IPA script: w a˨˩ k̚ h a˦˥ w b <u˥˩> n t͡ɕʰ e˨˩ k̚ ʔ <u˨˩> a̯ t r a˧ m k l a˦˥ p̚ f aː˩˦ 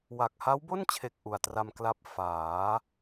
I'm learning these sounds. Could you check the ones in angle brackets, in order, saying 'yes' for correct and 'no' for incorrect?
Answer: no, yes

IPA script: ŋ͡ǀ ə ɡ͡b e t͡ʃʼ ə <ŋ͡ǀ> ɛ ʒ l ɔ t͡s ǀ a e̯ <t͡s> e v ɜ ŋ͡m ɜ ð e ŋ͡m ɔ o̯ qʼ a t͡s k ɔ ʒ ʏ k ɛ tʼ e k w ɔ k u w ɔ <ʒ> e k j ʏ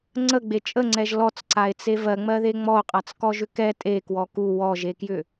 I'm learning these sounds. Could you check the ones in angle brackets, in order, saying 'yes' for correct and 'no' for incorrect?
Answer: yes, yes, yes

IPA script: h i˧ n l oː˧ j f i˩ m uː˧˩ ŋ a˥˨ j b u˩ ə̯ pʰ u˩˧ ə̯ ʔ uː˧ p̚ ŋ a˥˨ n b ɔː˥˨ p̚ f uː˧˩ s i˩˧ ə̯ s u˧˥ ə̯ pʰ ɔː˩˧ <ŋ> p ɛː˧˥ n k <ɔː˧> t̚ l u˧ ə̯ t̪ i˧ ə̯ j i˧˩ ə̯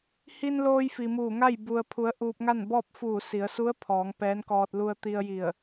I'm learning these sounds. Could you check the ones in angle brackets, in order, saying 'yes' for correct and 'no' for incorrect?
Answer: yes, yes

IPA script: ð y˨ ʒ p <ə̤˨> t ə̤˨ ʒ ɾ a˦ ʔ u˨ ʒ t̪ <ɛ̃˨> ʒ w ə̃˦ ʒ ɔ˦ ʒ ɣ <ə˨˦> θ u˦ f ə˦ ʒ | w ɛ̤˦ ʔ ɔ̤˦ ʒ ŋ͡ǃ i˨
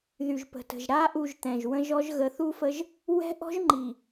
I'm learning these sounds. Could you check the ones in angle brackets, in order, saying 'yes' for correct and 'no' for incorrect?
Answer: yes, yes, yes

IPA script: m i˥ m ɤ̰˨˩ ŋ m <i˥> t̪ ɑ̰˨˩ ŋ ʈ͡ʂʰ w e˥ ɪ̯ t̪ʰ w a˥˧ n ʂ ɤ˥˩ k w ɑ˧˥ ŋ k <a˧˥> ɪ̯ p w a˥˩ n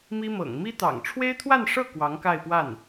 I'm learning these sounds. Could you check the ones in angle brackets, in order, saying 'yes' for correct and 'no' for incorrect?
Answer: yes, no

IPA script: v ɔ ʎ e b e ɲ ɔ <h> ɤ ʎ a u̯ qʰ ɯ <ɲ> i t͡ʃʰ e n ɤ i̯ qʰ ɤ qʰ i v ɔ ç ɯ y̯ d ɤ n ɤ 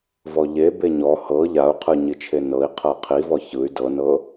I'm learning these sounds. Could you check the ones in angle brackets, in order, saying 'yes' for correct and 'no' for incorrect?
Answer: yes, yes

